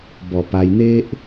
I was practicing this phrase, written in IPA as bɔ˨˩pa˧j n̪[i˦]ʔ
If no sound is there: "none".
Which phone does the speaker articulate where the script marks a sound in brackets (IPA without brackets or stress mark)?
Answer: e˦